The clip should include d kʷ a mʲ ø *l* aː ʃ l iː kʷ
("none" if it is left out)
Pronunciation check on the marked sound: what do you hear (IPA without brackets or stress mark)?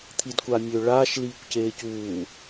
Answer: ɭ